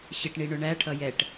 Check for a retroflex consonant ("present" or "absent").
present